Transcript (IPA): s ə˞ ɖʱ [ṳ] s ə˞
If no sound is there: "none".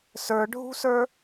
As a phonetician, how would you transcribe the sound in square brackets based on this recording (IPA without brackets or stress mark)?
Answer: ṳ